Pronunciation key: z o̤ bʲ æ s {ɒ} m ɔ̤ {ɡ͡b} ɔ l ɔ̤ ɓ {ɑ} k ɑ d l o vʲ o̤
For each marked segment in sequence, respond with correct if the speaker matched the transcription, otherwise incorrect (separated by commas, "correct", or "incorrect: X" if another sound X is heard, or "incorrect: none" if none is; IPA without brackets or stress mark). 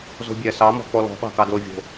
incorrect: ɑ, incorrect: k͡p, incorrect: ɑ̤